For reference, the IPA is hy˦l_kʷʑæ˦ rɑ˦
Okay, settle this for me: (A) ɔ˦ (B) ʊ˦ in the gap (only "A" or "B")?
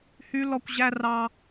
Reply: A